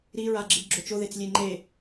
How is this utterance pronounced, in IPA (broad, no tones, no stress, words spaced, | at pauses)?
ɾiɹaɡ͡ǁɨb ɡ͡ǁot͡ʃoðet͡s lʲeŋ͡ǃe